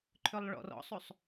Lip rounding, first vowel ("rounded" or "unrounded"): rounded